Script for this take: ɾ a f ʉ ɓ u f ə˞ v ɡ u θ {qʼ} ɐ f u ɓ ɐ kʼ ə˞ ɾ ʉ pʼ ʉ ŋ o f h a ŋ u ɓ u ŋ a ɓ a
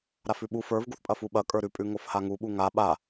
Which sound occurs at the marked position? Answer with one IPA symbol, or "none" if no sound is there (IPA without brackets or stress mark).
pʼ